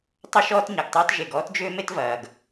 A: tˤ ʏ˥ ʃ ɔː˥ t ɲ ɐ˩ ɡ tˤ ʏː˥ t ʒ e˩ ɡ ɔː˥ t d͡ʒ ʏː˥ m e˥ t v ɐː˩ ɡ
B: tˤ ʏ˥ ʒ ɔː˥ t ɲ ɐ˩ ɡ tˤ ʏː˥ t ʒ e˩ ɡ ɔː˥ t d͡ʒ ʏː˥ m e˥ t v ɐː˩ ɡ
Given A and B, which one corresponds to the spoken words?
A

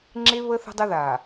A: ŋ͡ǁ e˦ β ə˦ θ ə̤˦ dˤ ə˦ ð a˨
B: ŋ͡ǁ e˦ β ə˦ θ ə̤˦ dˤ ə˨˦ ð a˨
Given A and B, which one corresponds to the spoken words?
A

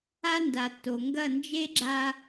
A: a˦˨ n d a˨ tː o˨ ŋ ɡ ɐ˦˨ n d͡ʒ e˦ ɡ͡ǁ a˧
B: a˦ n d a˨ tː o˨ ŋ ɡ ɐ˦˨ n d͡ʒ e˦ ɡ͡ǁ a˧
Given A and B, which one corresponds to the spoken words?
B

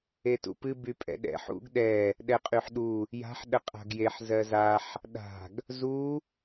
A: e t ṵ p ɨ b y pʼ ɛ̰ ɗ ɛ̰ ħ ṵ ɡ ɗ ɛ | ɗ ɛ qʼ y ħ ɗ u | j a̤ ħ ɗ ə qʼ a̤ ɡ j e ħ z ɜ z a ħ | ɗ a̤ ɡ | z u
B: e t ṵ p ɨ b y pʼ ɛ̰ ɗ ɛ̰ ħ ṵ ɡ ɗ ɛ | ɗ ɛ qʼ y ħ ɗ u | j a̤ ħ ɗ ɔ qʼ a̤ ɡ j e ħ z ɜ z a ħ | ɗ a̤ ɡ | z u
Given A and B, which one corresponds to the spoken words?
A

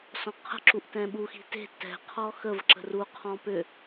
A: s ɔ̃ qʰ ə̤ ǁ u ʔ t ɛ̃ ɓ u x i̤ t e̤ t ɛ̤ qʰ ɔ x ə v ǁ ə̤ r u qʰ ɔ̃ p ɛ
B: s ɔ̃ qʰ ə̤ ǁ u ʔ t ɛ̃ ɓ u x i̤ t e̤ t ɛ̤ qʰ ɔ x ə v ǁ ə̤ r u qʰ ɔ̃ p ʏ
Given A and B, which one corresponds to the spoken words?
B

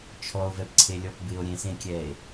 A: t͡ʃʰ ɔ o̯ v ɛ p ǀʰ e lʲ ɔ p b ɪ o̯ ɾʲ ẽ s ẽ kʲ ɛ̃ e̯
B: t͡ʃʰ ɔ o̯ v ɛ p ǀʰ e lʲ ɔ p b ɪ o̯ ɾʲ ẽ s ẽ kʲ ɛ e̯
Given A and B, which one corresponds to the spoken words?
B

